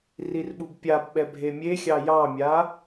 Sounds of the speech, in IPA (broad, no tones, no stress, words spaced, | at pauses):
rirɓubpʲabɓɛ bʱemʲexʲɑ jɑmʲa